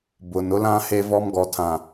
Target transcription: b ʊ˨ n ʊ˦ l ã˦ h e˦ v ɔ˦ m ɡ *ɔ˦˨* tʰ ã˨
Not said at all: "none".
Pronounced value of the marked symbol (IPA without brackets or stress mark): ɔ˨